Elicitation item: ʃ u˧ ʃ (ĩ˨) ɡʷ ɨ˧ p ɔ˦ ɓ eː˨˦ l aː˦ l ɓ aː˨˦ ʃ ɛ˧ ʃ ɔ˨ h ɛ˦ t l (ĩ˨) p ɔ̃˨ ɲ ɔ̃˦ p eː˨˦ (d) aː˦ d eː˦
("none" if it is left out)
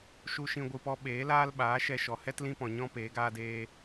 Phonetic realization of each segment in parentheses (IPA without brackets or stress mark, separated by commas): ĩ˧, ĩ˦, ɡ